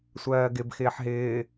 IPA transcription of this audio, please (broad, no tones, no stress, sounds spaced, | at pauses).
sʷ ɜː ɡ ɪ b x ɪː ħ ɦ ɪː